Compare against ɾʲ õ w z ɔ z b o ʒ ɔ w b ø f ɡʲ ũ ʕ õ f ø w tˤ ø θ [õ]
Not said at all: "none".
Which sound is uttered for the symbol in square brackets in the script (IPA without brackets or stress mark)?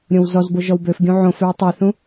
ũ